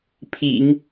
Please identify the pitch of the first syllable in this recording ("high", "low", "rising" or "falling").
low